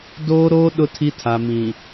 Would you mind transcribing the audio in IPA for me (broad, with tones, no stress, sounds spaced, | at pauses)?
d oː˦ ɾ oː˦ ɗ ʊ˦ tʰ i˦ tʰ a˨ m ĩ˨